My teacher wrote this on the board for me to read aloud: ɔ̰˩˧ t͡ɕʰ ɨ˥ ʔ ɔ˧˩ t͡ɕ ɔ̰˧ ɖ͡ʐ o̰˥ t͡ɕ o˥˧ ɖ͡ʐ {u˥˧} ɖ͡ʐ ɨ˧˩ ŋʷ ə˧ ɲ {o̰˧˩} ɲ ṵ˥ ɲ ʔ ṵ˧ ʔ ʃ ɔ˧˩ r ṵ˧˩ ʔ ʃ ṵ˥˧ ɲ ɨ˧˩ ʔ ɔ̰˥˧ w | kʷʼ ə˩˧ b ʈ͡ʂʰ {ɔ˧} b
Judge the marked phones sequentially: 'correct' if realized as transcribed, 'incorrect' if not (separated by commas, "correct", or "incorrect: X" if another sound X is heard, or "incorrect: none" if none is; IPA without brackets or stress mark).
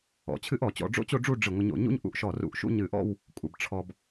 correct, correct, correct